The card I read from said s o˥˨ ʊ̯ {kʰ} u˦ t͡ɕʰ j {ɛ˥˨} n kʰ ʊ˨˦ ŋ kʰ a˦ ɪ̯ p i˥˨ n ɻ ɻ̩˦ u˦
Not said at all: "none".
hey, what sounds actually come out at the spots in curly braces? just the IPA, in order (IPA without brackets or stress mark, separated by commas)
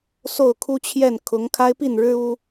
kʰ, ɛ˥˨